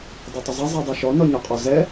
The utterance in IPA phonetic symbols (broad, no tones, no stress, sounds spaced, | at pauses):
dˤ ɛ tˤ ə zˤ ɛ zˤ i dˤ i ʃ ɔ n ɔ ɲ ɒ qʼ ɒ z ɛ